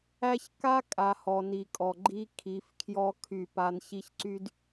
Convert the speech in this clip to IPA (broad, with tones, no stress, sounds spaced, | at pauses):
æ˦ ç k a˦ kʼ a˨ h ɔ˨ n i˨ kʼ ɔ˨ ɡ͡ǃ i˦ kʰ i˨˦ f kʰ j ɔ˦ kʰ y˦˨ p a˦ n ç i˦ ç ǀ y˦ d